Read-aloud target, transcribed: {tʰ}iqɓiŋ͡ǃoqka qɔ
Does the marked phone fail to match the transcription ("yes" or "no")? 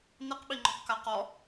yes